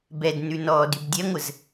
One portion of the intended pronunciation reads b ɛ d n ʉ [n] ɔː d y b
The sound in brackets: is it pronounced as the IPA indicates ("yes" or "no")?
yes